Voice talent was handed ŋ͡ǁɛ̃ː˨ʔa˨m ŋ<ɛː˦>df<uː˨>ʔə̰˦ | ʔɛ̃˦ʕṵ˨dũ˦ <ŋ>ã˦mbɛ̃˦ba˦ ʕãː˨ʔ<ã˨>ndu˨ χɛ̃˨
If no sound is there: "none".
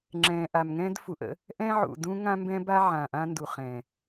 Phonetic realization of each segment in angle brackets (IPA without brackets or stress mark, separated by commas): ɛ̃ː˦, u˨, ŋ, ã˦